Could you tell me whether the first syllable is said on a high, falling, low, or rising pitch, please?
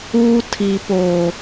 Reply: high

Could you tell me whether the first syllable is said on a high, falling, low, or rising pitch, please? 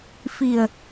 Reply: low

